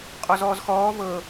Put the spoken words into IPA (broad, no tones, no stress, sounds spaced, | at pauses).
qʼ ɔ z ɔː z x ɔː v ɤː